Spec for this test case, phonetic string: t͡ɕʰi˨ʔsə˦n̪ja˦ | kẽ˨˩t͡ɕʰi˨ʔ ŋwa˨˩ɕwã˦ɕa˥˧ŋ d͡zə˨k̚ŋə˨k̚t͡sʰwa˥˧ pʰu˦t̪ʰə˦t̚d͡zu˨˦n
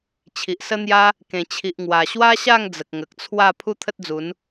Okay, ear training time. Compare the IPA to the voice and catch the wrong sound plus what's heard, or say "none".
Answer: ã˦ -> a˦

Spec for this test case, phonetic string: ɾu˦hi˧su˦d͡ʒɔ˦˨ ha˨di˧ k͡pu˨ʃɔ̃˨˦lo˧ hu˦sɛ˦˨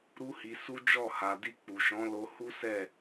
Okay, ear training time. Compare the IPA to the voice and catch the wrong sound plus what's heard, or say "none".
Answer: none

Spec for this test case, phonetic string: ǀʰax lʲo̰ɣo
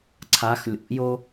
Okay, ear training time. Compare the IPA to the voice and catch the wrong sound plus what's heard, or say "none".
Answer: ɣ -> j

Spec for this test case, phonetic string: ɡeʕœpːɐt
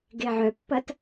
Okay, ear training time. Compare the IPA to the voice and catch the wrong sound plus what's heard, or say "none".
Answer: none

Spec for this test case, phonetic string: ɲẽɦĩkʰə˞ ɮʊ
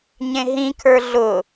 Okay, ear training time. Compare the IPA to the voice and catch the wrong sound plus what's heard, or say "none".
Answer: none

